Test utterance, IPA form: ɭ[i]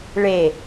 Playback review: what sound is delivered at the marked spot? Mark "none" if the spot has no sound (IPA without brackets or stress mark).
e